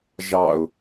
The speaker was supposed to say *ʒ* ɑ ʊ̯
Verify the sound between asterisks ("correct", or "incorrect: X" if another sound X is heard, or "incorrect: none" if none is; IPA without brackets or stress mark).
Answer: correct